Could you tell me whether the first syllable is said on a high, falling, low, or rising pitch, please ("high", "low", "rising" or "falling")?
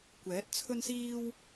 rising